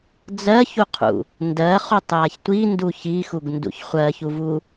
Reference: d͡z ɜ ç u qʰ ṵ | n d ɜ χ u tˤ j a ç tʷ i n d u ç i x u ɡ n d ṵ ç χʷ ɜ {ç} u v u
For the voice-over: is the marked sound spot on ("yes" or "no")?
yes